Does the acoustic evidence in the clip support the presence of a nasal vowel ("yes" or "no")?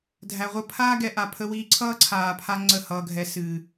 no